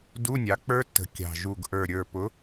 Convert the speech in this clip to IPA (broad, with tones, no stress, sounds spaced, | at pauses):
d u˧˥˧ nʲ ɑ˨˦ k͡p ə˞˦˥ tː ə̤˨˩ kʲ ɑ̤˨˩ ʒ u˨˩ ɡ ʔ ə˞˨˩ ɾʲ ə˞˨˩ p ʊ˨˦